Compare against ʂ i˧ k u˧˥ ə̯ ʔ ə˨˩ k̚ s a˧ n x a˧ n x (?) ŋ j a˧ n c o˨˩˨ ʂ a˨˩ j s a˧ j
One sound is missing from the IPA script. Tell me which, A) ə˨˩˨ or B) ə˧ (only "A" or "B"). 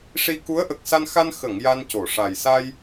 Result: A